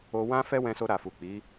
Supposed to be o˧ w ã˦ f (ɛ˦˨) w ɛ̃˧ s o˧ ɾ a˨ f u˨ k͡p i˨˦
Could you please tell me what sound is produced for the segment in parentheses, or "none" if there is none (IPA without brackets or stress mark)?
ɛ˦